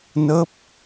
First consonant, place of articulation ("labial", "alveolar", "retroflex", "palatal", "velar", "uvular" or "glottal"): alveolar